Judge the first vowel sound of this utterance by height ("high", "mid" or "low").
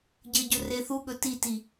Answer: mid